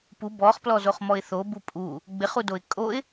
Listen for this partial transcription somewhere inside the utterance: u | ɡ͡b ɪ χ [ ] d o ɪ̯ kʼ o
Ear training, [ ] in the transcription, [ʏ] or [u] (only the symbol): u